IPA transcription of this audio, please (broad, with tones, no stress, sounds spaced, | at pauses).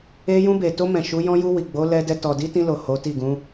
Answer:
e˧ j ũ˧ b e˨ t o˧ m ɛ̃˨ ʃ u˨˦ j ɔ̃˦ j u˧ w i˨ ɡ͡b o˨˦ l ɛ˧ d ɛ˧ t ɔ˨ d i˨˦ t ĩ˧ l o˨ h o˨˦ t i˦˨ ɡ ũ˨˦